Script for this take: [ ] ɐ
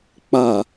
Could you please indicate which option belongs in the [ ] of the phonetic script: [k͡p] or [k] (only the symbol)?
k͡p